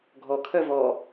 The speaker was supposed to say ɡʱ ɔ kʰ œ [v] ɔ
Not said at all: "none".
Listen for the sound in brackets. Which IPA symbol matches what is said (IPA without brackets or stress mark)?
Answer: v